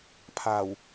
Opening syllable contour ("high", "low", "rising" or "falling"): low